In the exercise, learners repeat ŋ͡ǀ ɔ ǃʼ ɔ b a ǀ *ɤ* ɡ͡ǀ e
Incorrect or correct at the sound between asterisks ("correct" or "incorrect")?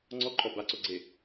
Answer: incorrect